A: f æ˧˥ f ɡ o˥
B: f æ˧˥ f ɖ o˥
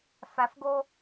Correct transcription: A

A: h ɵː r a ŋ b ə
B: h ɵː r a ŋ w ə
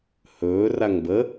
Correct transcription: A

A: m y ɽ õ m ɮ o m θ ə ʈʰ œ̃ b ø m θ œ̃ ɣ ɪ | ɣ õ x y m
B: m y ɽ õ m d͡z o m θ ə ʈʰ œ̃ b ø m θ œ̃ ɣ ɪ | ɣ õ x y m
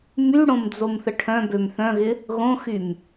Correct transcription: B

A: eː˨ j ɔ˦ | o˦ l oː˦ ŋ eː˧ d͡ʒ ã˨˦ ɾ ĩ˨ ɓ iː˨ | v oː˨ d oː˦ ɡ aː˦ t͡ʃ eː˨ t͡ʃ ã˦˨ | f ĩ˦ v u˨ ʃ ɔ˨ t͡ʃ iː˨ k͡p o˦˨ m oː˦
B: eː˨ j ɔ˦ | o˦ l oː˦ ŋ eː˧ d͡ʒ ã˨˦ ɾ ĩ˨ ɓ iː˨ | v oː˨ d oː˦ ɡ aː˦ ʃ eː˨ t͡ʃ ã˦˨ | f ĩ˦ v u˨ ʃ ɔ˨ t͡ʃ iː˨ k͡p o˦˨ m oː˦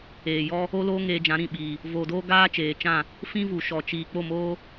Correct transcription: A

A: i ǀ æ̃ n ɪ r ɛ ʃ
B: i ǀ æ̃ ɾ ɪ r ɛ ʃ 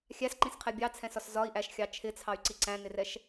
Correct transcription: A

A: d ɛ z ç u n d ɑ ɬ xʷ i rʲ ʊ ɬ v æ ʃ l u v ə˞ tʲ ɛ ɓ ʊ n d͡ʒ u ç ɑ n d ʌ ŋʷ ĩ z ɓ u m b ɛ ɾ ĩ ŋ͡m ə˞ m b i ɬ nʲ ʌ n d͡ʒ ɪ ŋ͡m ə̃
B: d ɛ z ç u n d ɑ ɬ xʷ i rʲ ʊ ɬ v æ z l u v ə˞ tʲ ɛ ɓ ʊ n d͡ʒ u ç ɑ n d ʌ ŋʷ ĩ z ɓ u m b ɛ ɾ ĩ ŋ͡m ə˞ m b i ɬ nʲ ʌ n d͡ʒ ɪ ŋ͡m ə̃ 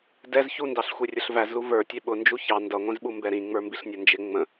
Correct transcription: B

